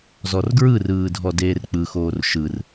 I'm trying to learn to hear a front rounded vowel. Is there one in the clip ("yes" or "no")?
no